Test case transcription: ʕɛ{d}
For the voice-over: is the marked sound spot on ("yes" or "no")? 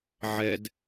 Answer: yes